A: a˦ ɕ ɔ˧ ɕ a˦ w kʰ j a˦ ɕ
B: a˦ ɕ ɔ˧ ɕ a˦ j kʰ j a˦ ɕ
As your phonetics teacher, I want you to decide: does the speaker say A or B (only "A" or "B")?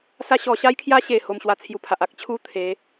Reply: B